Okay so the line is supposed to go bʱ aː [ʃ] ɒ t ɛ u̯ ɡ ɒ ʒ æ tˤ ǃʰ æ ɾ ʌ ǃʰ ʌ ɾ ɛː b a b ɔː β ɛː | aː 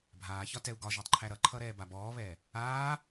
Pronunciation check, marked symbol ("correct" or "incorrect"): incorrect